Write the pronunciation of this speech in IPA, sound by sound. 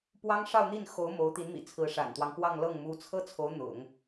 p w ɑ˥ ŋ ʂ ɑ˥˧ ʊ̯ n̪ i˥˩ n x o˧˥ ʊ̯ m o˧˥ ʊ̯ t̪ i˧˥ n m ḭ˨˩ t͡sʰ ɹ̩˧˥ ʂ a̰˨˩ n t̪ w ɑ˦ ŋ p w ɑ˥˧ ŋ l ɤ˥˩ ŋ m u˧˥ t͡sʰ ɤ˥ t͡sʰ o˧˥ ʊ̯ n̪ ʊ̰˨˩˦ ŋ

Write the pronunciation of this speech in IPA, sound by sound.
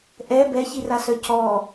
ʔ ɛ b ɛ ç i r a s œ c ɔ

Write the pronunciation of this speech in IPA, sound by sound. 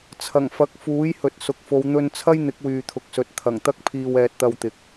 t͡sʰ ɐ˨˩ ŋ f ɐ˨˥ k̚ f uː˨˥ j h ɵ˨ t̚ s ʊ˨ k̚ f o˨˧ w n̪ ɵ˧ n t͡sʰ ɐ˥ j n̪ ɪ˨˥ k̚ w yː˨ t̪ʰ ʊ˨ k̚ s ɵ˨ t̚ t̪ʰ ɐ˨˩ ŋ t̪ ɐ˥ k̚ pʰ iː˧ w ɛː˧ t̚ t̪ ɐ˧ w t̪ ɪ˨ k̚

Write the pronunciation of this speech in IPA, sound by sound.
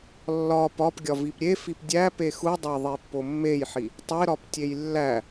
lː ɒ p ɒ p ɡʲ ɒ v i p ɾʲ e f i p dʲ æ p e x u dˤ æ ðˤ i pː o mː e j ħ i | tˤ e ɾ ɒ p tʲ e j lː æ

